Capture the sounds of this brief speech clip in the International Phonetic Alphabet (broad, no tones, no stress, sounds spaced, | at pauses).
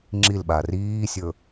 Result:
ŋ͡ǁ i l ɓ a r iː sʲ ɵ